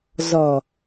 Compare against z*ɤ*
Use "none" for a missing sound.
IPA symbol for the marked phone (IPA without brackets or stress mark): ɔ